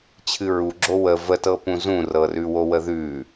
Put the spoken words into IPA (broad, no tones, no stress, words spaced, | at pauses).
t͡ɕʰɨɹuɡ͡ǁo wə vətɤpũ zũrɤrʉ wowəðʉ